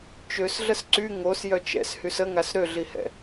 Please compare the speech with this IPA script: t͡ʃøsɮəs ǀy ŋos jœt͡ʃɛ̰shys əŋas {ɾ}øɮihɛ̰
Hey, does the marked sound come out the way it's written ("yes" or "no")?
yes